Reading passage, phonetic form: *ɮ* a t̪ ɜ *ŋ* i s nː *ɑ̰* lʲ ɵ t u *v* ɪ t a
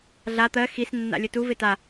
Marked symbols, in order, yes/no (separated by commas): yes, no, no, yes